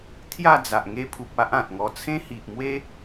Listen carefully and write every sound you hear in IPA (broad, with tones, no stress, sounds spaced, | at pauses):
t̪ʰ j a˥˧ d͡z a˨ ʔ ŋ e˧ pʰ u˨ p̚ a˦ ʔ ã˨ t̚ ŋ ɔ˧ t͡sʰ ẽ˦ h i˨ ʔ m w e˦